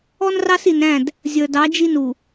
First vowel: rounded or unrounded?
rounded